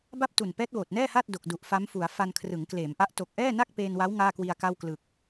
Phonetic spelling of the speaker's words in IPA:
b a˥˩ p̚ t u˨˩ n p ɛː˦˥ t̚ w oː˨˩ t̚ n ɛː˥˩ h aː˥˩ t̚ d o˨˩ k̚ d u˨˩ ʔ f a˦˥ m f u˩˦ a̯ f a˧ n kʰ r ɯ˩˦ ŋ k l eː˩˦ m ʔ a˦˥ ʔ t o˨˩ k̚ ʔ ɛː˥˩ n a˥˩ k̚ p eː˧ n w a˦˥ w ŋ aː˥˩ k w i˧ a̯ k a˥˩ w k l ɯ˨˩ k̚

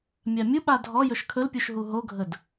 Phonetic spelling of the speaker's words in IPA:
mʲ a mʲ u ɓ a dʱ ɔ j ɵ ʃ kʰ ɵ l pʲ u ʃ ɦ u ɦ o ɡʱ ə d

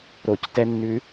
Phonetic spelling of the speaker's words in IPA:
ɾ o c t ɛ nː ʉ

